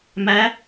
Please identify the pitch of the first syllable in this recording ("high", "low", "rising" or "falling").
rising